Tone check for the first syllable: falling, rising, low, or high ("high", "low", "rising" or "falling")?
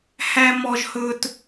high